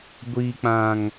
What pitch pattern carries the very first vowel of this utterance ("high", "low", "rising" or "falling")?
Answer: high